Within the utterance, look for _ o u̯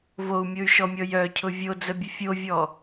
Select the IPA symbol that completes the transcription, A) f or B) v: B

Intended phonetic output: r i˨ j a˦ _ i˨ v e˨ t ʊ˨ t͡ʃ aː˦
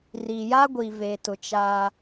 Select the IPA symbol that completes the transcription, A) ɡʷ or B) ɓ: A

